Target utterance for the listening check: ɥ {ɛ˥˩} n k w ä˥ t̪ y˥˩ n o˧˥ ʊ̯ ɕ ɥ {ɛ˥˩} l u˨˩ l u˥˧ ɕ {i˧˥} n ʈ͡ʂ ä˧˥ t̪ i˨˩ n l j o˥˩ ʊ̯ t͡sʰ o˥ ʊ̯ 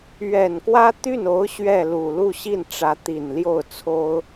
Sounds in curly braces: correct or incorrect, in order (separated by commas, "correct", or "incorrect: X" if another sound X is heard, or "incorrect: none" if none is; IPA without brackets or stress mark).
incorrect: ɛ˨˩, correct, incorrect: i˥˩